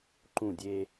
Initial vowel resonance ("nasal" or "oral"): nasal